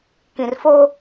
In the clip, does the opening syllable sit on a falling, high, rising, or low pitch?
low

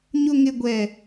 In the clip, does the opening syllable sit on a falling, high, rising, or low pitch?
high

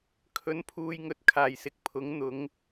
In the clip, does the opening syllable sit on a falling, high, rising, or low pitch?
rising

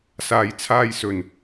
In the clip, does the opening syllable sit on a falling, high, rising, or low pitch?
low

